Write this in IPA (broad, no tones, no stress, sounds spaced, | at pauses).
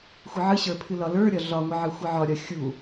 xʷ ɨ ʕ ɨ ɕ ə˞ pʰ ɨ l ɒ l ə˞ ɾʲ ɒ ɮ ɒ ŋʷ ɨ ʕ ɨ xʷ ɨ ʕ ɒ ɾʲ ɒ xʲ u